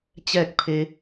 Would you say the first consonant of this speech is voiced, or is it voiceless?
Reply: voiceless